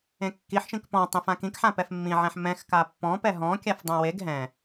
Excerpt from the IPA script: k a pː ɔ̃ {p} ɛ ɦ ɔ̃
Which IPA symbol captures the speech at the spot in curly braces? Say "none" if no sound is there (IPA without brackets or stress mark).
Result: p